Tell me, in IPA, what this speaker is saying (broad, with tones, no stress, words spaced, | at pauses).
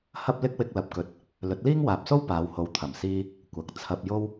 hɐ˥p̚lɪ˥k̚ wɪ˥k̚lɐ˧p̚kɵ˧t̚ | lɵ˨˥t̚liː˥ŋwaː˨p̚so˥w paː˨˧who˨˧w t̪ʰɐ˨˩msiː˧ | kʷɐ˨k̚ t͡sʰɐ˧p̚jo˥w